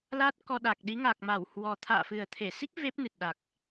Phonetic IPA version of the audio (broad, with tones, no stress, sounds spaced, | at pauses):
l aː˦˥ t̚ k ɔ˧ ɗ a˨˩ k̚ ɗ i˨˦ ŋ a˨˩ k̚ m a˧˩ w h w ɔ˨˩ t̪ʰ a̰ː˧˨ f ɨ˨˩ ə̯ t̪ʰ e˧˩ s i˦˥ k̚ v e˦˥ p̚ n ɨ˨˩ t̚ ɗ a˨˩ k̚